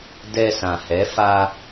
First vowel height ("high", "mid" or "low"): mid